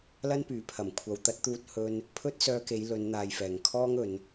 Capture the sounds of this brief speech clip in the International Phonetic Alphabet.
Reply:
l ɐ˥ n p yː˨˥ pʰ ɐ˨˩ m kʷʰ ɐ˨˧ w t̪ ɐ˨˥ t̚ t̪ uː˧ t̚ h ɵ˧ n | pʰ ɵ˥ t̚ s œː˧ k e˨˧ j l ɵ˨˧ n n̪ aː˨ j f ɛː˨˩ ŋ kʰ ɔː˥ ŋ ɵ˨˧ n

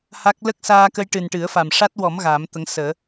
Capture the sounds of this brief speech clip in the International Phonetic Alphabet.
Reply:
h a˦˥ k̚ l ə˦˥ k̚ s aː˧ k ə˧ j ʈ ɨ˨˩ n ʈ ɨ˨˩˦ ə̯ f a˨˩ m ʂ a˦˥ t̚ w ɔ˨˩˦ m ɣ aː˨˩˦ m t̪ ə˧˥ ŋ s əː˨˩˦

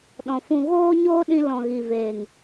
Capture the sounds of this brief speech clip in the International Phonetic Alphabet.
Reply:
ɗ ɔ̃˨ f ũ˧ ɣ oː˦ ɲ oː˦ ɗ ĩ˧ l ɔ̃˨ ɣ i˨ v eː˨ ŋ

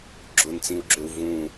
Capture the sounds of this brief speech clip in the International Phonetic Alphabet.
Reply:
ɡ͡ǁ ʊ n t͡s ĩ u̯ ɡ͡ǁ ø u̯ v ũ

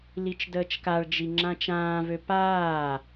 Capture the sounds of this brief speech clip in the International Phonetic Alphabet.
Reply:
l i t͡ʃ d əː t͡ʃ k a ɭ d͡ʒ i ŋ͡ǁ ã t͡ʃ ãː v ø p aː

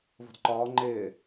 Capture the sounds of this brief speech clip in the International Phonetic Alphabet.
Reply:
v o̤ d ǃ ɒː ŋ͡ǃ ɪː

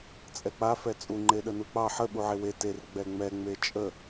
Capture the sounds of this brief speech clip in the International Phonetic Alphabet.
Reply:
t͡sʼ ɛ k͡p a f ɛ t͡sʼ u ŋ͡ǃ e ɗ ə n u k͡p ɑ ħ ə ɓ u ʕ e w e t e r ɡ͡b ɛ ŋ͡m ɛ ŋ͡m e t͡ʃʼ ə

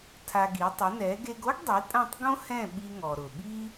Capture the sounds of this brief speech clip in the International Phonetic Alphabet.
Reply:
tʰ a˧ ɡ i˩˥ tˤ ʊ˩˥ n ɛ˩˥ ɡ e˧ ɡ o˥ ɡ dˤ i˩˥ tʼ ã˥˩ tˤ ɡ õ˥ h ɛ̃˥˩ ɓ i˧ ŋ ɔ˩ ɾ ʊ˩ ɓ i˥

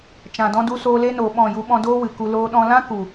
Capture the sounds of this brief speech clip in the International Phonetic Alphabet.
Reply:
t͡ʃ ã˨ d ɔ̃˧ d u˧ s oː˧ l e˧ n oː˨ ɓ ɔ̃˦˨ j u˦ ɓ ɔ̃˦ d oː˦ w ɨ˨ k u˧ l oː˧ ɗ ɔ̃˧ l ã˦ k u˨

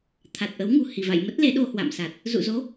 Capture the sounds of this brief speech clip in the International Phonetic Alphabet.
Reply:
t̪ʰ a˨˩ t̚ ʔ ə˨˦ w ŋ ṳ˨˩ h i˧˩ v a̰˧˨ j m ə˦˥ t̚ l e˨˦ ɗ o˧ h w a̰˧˨ m s a˨˩ t̚ | z ṵ˧˨ z o˨˦

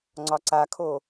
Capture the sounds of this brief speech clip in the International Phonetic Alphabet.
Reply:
ŋ͡ǀ ɒ ǀ a kʰ o

